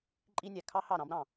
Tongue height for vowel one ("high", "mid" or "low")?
high